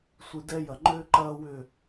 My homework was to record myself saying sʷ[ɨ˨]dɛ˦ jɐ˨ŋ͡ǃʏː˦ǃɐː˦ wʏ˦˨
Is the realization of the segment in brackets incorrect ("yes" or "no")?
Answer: yes